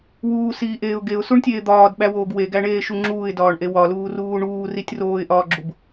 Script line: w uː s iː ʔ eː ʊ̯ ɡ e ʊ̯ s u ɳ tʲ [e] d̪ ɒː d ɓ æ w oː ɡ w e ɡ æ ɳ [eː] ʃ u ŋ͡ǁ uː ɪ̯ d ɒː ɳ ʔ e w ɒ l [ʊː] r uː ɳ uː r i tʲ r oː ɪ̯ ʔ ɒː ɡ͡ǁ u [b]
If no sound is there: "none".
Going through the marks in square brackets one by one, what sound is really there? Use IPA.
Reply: eː, eː, uː, b

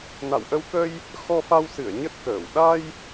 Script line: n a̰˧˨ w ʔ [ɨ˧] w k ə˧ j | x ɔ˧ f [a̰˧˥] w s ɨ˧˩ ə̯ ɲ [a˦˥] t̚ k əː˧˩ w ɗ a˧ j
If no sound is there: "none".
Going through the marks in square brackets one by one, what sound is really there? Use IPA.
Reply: ə˧, a˧, ə˦˥

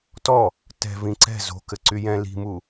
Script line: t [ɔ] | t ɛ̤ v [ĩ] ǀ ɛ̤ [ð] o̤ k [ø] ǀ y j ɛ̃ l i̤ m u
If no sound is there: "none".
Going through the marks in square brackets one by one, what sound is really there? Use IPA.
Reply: ɔ, ĩ, z, ɘ

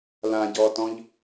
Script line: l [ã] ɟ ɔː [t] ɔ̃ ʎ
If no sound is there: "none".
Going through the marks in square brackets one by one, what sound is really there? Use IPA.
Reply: ã, t

